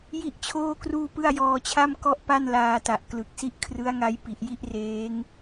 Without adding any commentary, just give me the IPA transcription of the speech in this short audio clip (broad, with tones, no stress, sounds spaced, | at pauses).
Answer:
j i˥˩ ʔ t͡ɕʰ oː˥˩ k r uː˥˩ p ɯ˥˩ a̯ j ɔː˧ t͡ɕʰ a˥˩ m k ɔ˥˩ ʔ p a˥˩ n l aː˧ t a˨˩ ʔ k l ɯ˨˩ k̚ s i˦˥ ʔ kʰ r ɯ˦˥ a̯ ŋ a˦˥ j p i˨˩ ʔ j i˥˩ ʔ r eː˦˥ ŋ